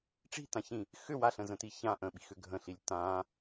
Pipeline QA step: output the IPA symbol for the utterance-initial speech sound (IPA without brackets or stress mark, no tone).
ʈ͡ʂ